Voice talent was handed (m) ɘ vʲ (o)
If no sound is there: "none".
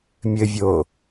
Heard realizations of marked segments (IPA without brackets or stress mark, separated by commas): mʲ, o